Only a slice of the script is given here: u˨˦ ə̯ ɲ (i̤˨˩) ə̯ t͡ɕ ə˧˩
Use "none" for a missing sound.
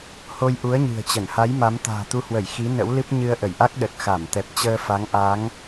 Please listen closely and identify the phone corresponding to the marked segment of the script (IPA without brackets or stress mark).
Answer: ɨ̤˨˩